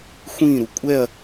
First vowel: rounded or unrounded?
unrounded